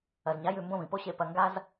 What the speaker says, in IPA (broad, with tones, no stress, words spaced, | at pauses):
ɐ˨zɲa˨˦ jʉ˦˨mbõ˦vĩ˨po˦ ɕe˦ pɐ˧ŋɡa˦z